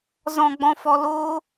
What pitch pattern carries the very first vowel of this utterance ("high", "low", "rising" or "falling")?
low